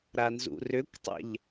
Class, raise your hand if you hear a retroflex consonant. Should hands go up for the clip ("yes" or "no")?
no